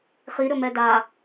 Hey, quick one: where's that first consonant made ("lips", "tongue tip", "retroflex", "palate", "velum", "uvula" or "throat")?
uvula